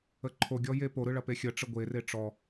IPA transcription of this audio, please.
ə ǃʰ o ɡʲ ɔ j e p o ɾ ɯ ɭ ɐ p e xʲ ə ʈ͡ʂ ə ɡʷ e r e ʈ͡ʂ ɔ

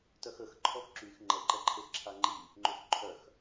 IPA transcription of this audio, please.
t œ x ə x ǃʰ ɔ x ǁ y x ŋ͡ǃ ɛ ǃ ɛ ǃʰ e x ǁʰ a ŋ͡ǃ i | ŋ͡ǃ ø x ǃʰ œ x

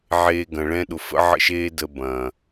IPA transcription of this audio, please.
ʕ eː˧ ɡ ɐ̃˨ ɭ ɛ̃˦ ɗ ʊ˨ f ə̰˦ ʕ ə̰˦ ʃ eː˦ d ə˧ b ɐ̃ː˨

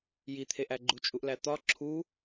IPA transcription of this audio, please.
j i t̪ʰ e ʔ æ ɡ͡ǃ u t͡ʃʼ u ʔ l æ t̪ ɒ ǁʰ u

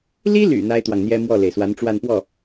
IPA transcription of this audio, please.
l i˥ l y̰˨˩ n̪ a˥ ɪ̯ t̪ w ɑ˨ ŋ n̪ j ɛ˥ m w ɔ˥˩ l e˩ ɪ̯ s w a˧˥ n ʈ͡ʂ w a˥˧ n p w ɔ˥˩

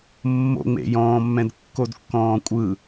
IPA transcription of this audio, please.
mː o̰ ŋ͡m ḛ j ɔ̃ː mː ɛ̃ d kː o d kː ɔ̃ː kʷʼ ɯ

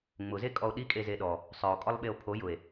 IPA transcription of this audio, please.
ŋ͡m ʊ z e kʼ ɔ o̯ ɗ i kʼ e z e ɗ ɔ | sˤ œ o̯ kʼ ɔ lˠ ɓ e o̯ pʰ o j ʊ e̯

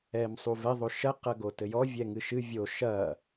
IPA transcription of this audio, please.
ɛ m sˤ u v ɛ ðˤ o ʃ ɐ q ɐ ɡ o t ɘ j ɔ vʲ ɛ ŋ ɨ ʃ ɨ vʲ o ʃ ɐ

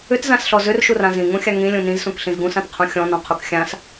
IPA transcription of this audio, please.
ʏ t z ã s ɬ ɔ z ʏ r ʃ u r ã z ĩ ŋ ũ xʲ a ŋ ĩ lʲ ũ n ĩ z s ũ k ɬ ĩ z ɡ ũ s ã t qʰ ũ xʲ ɔ̃ n ɔ̃ qʰ u k xʲ ã s

